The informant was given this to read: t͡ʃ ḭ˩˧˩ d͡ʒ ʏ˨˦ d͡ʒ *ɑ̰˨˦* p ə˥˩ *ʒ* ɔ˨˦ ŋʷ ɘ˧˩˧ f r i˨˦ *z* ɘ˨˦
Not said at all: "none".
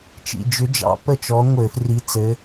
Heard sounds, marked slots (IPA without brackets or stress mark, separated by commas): ɑ̰˨˦, t͡ʃ, t͡s